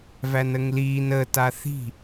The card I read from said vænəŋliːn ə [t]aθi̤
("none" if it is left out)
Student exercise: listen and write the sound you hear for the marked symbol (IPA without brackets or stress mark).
t